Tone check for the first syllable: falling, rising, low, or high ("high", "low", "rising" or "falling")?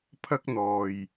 high